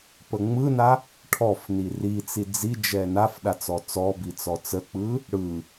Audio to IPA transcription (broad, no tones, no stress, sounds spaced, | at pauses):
p ə ŋ͡m ɯ n a | ʈʰ ɔ f n i r i t͡s i d͡z i d͡ʒ ɛ n a f ɗ a t͡s ɔ t͡s ɔ b i t͡s ɔ t͡s ə k͡p ɯ | ɽ ɯ